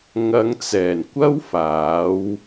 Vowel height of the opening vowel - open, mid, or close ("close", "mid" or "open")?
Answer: open